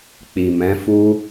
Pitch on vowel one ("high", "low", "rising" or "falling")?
low